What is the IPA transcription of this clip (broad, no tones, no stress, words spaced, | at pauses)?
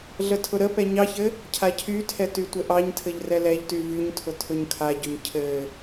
ɮətʰʊɾəpɛ ɲɑçɘ | cʰacʰytʰɛ tytʷɘʔɑɲtʰɘʎ rɛlɛʎty vyɲtʰʊ tʰʊɲkʰaɟʊɲ cʰɘ